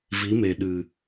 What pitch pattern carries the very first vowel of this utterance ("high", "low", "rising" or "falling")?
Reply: rising